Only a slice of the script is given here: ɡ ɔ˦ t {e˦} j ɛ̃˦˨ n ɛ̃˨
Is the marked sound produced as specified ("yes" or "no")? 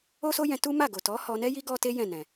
yes